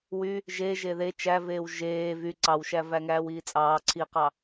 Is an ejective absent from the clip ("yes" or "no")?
no